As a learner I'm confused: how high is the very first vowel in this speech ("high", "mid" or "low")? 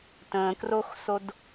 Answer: mid